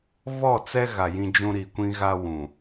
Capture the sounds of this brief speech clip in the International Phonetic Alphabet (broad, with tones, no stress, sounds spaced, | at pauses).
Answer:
β ɔ˦˨ t͡s ɛ˦ ɣ a˨ j ĩ˦ d͡ʒ ũ˦ ɾ i˨ kʷ ĩ˦ ɣ a˦ w ũ˨